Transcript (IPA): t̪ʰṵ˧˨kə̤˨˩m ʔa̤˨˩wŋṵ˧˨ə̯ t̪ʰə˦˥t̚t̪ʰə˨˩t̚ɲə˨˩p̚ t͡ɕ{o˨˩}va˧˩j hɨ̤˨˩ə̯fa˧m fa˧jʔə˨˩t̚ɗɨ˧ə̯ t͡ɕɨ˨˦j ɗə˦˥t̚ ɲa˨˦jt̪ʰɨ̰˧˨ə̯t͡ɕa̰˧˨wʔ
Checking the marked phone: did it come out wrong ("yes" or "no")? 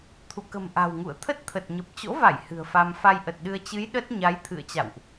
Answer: yes